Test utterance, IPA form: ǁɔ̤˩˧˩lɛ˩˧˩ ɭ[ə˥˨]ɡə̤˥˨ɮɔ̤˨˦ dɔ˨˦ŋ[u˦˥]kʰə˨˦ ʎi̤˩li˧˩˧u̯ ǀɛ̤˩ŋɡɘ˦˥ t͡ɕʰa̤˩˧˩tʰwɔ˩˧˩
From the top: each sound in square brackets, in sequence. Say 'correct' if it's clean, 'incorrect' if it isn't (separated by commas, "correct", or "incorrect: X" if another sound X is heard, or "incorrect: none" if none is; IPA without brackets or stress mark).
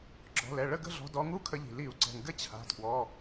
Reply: correct, correct